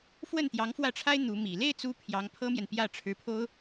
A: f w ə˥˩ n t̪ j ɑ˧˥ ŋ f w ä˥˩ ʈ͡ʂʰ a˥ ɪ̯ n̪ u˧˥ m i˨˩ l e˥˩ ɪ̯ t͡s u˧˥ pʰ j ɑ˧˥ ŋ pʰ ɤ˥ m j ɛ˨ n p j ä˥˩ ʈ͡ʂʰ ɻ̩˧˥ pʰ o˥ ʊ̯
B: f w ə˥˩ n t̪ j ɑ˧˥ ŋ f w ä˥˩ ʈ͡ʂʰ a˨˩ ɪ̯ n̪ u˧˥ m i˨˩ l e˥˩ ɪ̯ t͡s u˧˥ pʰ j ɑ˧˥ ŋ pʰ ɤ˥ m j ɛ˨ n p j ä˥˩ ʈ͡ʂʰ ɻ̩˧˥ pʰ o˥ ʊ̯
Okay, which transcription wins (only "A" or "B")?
A